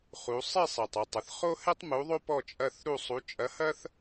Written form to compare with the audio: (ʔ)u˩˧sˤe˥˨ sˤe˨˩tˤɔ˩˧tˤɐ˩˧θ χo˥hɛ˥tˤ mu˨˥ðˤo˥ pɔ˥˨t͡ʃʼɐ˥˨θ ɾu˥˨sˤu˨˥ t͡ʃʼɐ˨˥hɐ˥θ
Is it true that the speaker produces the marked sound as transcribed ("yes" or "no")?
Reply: no